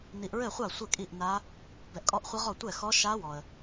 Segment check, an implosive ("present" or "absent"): absent